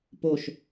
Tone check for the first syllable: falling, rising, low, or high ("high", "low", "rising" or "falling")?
falling